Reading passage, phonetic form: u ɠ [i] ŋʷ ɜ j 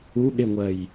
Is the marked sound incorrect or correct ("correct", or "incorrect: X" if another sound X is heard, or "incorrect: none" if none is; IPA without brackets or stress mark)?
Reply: incorrect: e